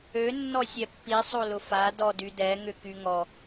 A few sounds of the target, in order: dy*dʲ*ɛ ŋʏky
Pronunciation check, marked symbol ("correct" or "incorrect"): incorrect